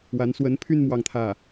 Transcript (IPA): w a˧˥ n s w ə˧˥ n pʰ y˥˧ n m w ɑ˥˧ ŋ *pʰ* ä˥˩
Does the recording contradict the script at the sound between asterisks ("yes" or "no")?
yes